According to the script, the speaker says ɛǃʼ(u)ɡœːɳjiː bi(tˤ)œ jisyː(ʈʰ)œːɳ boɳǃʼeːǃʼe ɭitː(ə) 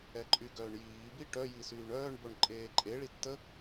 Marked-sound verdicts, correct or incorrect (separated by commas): incorrect, incorrect, incorrect, correct